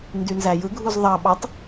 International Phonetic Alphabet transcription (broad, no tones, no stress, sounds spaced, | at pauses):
n d y n z æ j ɯ ɡʱ u z ðˤ ɑ ɓ ɑ tˤ